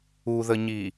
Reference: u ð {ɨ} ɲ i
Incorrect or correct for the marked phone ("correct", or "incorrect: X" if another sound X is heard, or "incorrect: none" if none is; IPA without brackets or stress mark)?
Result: incorrect: ə